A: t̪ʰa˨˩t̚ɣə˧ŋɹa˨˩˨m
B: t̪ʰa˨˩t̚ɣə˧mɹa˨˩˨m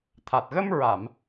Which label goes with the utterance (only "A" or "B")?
B